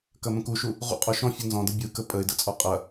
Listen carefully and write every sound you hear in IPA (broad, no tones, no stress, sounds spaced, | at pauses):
k ɐ m ə̃ k u ʃ u | ʁ ṵ qʼ ɔ ʃ ɔ̃ fʲ ɯ n z ɔ̃ d ə bʲ ɯ k ə pʼ ə ɪ̯ d ə̰ t͡sʼ ɔ qʼ ɐ